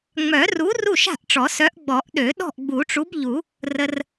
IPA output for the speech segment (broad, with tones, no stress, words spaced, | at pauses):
ŋ͡mœ˨˩˦ru˨˥ ru˥˨ʃa̤˥˨ʔʈ͡ʂɔ˨˩˦sœ˨˥ʔ ɡ͡bɔ˨˩˦ʔɗø˨˩˦ ɗɔ̤˥˨ʔɡ͡bu˨˩˦ʈ͡ʂu˨˥bʎu˨˩˦ | rə˧r